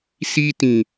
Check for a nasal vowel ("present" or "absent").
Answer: present